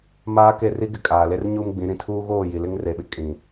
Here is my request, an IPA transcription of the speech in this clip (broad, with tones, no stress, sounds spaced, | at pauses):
m aː˦ k e˦˨ r i˦ ɡ ɪ˨ kʼ aː˨ l e˦ r ɲ uː˦ m ɡ͡b ĩ˨˦ ɾ ĩ˨ tʰ uː˦ ɣ oː˦˨ j i˨ l ɪ˦ ŋ r e˨ ɓ ɪ˦ kʼ ĩ˨